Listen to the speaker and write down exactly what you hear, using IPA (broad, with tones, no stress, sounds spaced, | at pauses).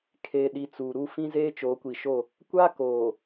kʰ eː˨ ɗ i˨ t͡s uː˨ ɾ u˦ f ĩ˦ z eː˦ t͡ʃ oː˨˦ kʷ i˨ ʃ o˦˨ | kʷ a˦ k oː˨